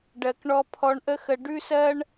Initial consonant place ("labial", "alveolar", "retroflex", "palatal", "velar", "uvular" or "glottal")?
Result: retroflex